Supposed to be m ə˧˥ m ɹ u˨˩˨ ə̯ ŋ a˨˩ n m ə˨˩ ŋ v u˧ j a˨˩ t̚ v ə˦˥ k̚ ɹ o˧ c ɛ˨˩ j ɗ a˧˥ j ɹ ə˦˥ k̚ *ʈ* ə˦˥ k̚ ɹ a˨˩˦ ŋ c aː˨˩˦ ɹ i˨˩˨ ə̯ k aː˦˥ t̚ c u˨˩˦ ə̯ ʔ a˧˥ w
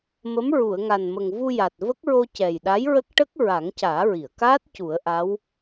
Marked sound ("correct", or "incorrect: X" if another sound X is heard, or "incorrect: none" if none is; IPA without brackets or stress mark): correct